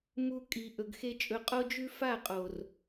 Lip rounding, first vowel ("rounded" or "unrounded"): rounded